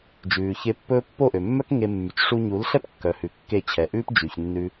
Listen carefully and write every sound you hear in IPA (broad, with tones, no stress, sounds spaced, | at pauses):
d͡ʒ ʉː˨ ç e˧ pː ɵː˦ pː o˦˨ ʔ ø˨ mː œ˦ k ŋ e˧ mː y˨ t͡ʃ ʂ u˧ ɲ u˨˦ l ɬ ɛ˦ p kː œ˨ h ʉ˨ kː e˦˨ t͡ɕʰ ɛ˨ ʔ ʉː˦ p d͡ʒ y˨ ç nː ʉ˧